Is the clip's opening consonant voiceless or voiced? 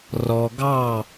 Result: voiced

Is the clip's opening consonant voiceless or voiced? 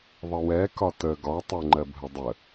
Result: voiced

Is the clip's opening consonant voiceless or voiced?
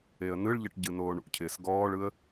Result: voiced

